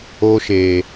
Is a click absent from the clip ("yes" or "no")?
yes